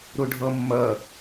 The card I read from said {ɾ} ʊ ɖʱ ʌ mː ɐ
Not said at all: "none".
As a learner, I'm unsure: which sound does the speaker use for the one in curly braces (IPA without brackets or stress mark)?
ɾ